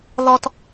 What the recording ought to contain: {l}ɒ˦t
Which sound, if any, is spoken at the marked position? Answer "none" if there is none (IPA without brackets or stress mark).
l